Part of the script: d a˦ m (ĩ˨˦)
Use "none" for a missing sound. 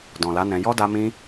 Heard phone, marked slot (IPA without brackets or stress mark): ĩ˦